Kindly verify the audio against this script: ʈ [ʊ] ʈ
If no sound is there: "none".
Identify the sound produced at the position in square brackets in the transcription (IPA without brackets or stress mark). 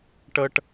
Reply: ə